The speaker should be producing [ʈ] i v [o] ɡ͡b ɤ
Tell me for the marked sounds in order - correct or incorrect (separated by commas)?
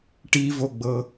correct, correct